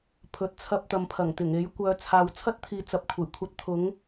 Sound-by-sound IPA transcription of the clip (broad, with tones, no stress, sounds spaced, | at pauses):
pʰ ɵ˨ t̚ t͡sʰ ɐ˧ p̚ t̪ ɐ˨ m pʰ ɐ˨˩ ŋ t̪ ɪ˨˩ ŋ e˨˥ j kʷ œː˨˧ t͡sʰ aː˨ w t͡sʰ ɐ˥ t̚ t̪ʰ iː˨˧ t͡s ɐ˨ p̚ kʷʰ e˨˩ j kʷʰ ɐ˧ t̚ t̪ʰ ʊ˨˥ ŋ